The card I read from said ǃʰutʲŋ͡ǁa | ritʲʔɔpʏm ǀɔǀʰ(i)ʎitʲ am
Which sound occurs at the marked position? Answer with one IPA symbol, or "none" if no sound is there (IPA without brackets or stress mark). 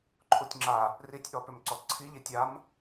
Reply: i